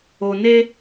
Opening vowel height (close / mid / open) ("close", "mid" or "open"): mid